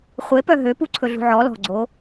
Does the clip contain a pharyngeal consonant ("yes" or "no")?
yes